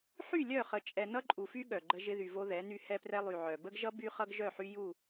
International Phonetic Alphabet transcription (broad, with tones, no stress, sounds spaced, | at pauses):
ħ y˦˨ lʲ œ˦˨ χ ə˨ t͡ʃʼ ɛ˨ n ʌ˦ ǃʼ u˨ f y˦ ɠ œ˨ ɡ͡ǃ ə˦ ʒ ɪ˦ ð y˨ v o˦ ð ɛ˨˦ n y˦ h ɛ˦ p r ɛ˦ lˠ y˨ ʕ œ˨ b ə˦ ɡ ʒ ʌ˦ b y˦ χ ʌ˦ ɡ ʒ œ˦˨ ħ y˦ j u˦˨